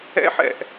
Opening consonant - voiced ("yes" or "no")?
no